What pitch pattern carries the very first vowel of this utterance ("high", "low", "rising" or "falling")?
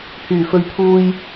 low